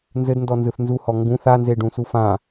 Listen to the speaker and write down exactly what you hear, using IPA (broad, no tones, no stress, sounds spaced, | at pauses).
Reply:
n z ɘ d n d ɔ n z ɯ θ n z u h ɔ ŋ ɡ ũ θ a n z e ɖ ũ s u f ã